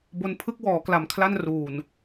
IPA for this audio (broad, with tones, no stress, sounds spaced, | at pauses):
b o˧ n pʰ ɯ˦˥ k̚ w ɔː˩˦ k l a˨˩ m kʰ l a˥˩ n r uː˨˩ n